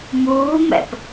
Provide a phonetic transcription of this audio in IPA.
muːmɛ̰p

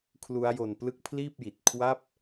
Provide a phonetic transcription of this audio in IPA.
kʰlu˦˥a̯jo˧nplɯ˥˩k̚ pʰliː˥˩p̚ji˨˩t̚ kʰwa˥˩p̚

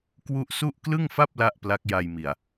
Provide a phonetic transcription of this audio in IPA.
kwu˦˥ʔsu˥˩ʔ klɯ˥˩ŋfa˥˩p̚ la˥˩ʔ pla˦˥k̚ja˧jmi˨˩a̯

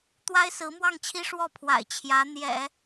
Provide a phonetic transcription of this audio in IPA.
t̪wa˥ɪ̯sɹ̩˧˥mwɑ˥˩ŋt͡ɕʰi˥ ʂwɔ˥˩pʰwa̰˨˩ɪ̯ t͡ɕʰjä˧˥ n̪jɛ̰˨˩˦

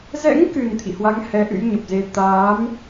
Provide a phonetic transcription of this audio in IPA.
zɛ̰˧˥ŋkɨ˨˩n t̪ʰḭ˧˨hwa˨˦ŋ hɛ˨˦ʔɨ̰˧˥jɲə˨˩p̚ze˧ t̪aː˨˦m

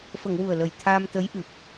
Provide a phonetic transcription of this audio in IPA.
fə˨˩˨ŋ wu˨˩ə̯lə˨˩j t̪ʰaː˧mt̪ə˧˥j ʔɨ˨˩p̚

